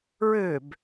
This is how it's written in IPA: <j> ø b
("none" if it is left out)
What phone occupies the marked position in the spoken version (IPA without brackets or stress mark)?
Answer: ɹ